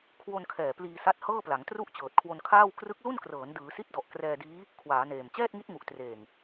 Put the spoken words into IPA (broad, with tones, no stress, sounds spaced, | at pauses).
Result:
kʰ w o˧ n kʰ ɛː˨˩ p l iː˧ s a˦˥ t̚ h ɤː˥˩ p l a˩˦ ŋ t r u˥˩ ʔ t͡ɕ ɤː˨˩ t̚ kʰ w o˧ n kʰ aː˥˩ w k r ɯ˦˥ k̚ l u˥˩ n k r ɤː˩˦ n d ɯː˩˦ s i˦˥ t̚ d ɔ˨˩ ʔ k r ɛː˧ d iː˦˥ | kʰ w aː˩˦ n eː˨˩ m t͡ɕ ɛː˥˩ t̚ ŋ i˦˥ t̚ ŋ u˨˩ ʔ t r eː˨˩ ŋ